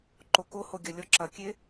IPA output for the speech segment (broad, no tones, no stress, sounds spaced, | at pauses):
ǃ o k o h o ɡʲ ɐ lʲ ɔ ǁ ɐ kʲ e